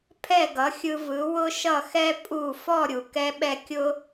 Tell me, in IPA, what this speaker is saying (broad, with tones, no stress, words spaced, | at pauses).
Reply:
pʰɛ˥˩ɡʌ˩˥xʲɯ˧ vɯ˩˥wʊ˥ ʃʌ˥˩xɛ˥ pʼu˥˩ fɔ˥˩ ɾʲu˩kɛ˥ɓɛ˥ kʲʊ˥